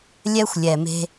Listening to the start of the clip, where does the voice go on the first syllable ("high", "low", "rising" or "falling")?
high